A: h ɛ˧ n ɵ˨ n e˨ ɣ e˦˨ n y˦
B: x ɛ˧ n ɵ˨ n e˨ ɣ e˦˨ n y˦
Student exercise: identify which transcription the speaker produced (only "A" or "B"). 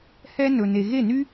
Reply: A